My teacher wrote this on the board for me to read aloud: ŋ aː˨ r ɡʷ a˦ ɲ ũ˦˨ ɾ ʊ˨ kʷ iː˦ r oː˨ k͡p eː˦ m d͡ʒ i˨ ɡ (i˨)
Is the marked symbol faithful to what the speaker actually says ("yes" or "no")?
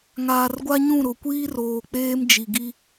no